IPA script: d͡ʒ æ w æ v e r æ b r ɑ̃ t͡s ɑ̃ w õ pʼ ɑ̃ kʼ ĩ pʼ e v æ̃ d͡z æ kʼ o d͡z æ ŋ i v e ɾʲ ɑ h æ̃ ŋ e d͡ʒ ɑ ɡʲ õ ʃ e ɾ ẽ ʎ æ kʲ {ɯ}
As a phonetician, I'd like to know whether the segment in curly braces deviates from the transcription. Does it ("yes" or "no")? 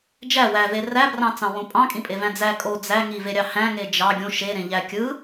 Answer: no